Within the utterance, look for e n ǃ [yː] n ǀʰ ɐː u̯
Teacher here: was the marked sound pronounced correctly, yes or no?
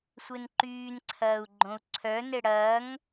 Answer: yes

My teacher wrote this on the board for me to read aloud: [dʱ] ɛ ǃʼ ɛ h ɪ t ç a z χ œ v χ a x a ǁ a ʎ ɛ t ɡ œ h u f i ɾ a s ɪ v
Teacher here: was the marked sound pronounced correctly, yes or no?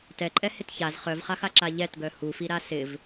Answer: no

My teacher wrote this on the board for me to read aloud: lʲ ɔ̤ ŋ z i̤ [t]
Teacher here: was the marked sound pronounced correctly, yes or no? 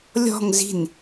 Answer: no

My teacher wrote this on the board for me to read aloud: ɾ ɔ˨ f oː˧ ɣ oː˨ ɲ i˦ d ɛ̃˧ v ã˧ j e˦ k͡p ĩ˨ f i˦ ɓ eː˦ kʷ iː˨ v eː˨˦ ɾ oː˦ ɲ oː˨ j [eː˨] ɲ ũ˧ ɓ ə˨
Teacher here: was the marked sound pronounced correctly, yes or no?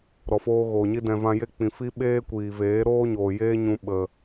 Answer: no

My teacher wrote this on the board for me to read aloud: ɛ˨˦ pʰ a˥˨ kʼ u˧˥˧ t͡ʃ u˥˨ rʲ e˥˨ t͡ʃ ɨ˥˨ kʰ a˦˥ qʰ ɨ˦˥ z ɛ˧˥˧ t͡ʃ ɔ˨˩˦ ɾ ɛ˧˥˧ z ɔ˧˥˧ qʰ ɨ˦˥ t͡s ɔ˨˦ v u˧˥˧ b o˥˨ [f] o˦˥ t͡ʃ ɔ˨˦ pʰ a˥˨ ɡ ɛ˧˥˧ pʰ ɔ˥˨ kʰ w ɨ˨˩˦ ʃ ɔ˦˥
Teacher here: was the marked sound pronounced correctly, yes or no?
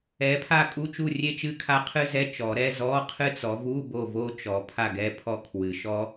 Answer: no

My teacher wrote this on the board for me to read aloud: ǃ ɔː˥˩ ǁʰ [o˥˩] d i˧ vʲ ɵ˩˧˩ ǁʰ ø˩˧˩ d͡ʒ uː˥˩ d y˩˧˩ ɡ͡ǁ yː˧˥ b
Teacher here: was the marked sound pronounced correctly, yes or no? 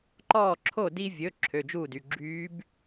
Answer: yes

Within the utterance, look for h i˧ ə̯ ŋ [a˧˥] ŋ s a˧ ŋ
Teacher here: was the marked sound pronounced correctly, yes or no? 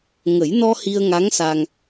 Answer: yes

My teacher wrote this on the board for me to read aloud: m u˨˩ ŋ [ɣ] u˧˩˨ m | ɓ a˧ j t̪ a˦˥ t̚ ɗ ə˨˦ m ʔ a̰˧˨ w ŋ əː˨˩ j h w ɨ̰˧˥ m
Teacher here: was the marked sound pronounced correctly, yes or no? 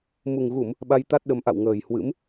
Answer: yes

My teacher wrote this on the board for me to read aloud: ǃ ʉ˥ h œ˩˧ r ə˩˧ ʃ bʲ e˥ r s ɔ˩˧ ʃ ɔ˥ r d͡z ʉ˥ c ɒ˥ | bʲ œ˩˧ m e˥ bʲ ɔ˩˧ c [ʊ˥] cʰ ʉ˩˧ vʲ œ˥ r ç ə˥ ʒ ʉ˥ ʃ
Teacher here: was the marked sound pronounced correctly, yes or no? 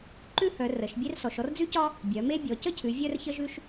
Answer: no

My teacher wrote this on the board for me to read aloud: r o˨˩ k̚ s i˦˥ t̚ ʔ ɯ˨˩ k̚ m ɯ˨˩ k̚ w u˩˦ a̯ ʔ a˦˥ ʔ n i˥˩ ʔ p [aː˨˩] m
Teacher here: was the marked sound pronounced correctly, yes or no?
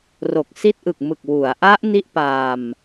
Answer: no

